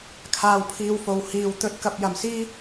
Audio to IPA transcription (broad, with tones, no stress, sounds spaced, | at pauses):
kʰ aː˧ w pʰ iː˧ w f o˨ w h iː˧ w t̪ ɵ˨ t̚ k ɐ˨ p̚ j ɐ˨ m s iː˥